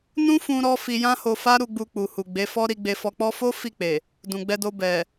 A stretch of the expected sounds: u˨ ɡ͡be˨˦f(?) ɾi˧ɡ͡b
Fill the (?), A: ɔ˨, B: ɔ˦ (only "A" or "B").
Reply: B